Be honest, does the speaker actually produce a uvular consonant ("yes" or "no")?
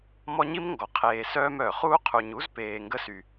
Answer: yes